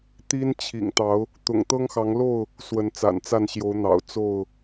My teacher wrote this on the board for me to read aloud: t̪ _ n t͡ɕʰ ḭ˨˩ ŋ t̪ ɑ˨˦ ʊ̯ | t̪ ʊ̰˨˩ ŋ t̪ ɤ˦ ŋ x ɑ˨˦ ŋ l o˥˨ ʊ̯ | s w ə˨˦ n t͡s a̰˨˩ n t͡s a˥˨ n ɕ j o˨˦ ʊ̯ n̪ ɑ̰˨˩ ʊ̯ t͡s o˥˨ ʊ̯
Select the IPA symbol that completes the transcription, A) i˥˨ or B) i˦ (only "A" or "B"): B